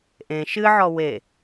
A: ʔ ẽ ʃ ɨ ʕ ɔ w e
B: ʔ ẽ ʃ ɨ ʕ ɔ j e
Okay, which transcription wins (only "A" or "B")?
A